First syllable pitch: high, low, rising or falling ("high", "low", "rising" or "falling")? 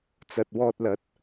low